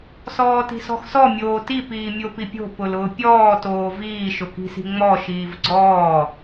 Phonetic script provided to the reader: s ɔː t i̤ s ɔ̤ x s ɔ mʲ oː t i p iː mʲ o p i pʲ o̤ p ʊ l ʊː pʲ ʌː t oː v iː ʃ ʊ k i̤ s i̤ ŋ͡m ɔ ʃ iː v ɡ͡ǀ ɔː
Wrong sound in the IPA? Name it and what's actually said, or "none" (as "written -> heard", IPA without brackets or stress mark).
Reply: ʌː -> ɔː